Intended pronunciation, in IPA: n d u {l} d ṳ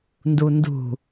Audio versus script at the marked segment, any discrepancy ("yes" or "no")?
yes